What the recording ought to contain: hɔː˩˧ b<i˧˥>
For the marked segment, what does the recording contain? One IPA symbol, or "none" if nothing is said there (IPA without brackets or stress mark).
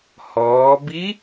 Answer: i˧˥